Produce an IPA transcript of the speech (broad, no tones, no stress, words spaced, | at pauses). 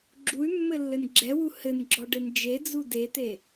ɡ͡ǁuy̯mːɘlːɘn ɡ͡ǁɛwu hɘnɡ͡ǁɔɖɘn d͡ʒed͡zu det̪e